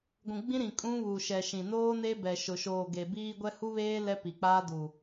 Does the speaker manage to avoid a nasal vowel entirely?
no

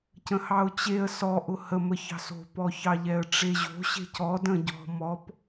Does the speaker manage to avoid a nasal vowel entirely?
no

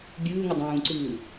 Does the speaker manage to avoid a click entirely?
no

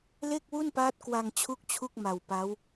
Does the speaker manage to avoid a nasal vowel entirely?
yes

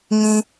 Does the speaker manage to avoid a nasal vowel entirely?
no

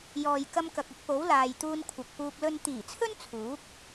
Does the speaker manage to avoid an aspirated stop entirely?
no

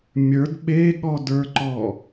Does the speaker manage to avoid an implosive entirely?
no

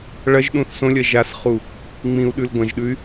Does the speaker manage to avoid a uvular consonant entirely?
no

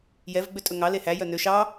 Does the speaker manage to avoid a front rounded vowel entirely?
no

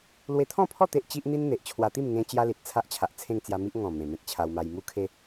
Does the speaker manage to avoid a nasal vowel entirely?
no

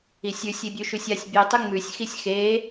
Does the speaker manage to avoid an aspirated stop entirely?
yes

